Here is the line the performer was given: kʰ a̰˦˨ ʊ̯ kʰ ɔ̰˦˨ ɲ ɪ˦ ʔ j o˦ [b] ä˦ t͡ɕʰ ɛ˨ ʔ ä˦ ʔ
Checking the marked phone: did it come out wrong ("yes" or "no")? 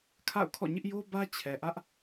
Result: no